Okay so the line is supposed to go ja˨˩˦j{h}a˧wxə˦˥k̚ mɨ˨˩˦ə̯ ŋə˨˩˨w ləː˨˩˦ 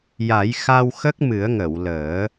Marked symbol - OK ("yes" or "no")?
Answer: no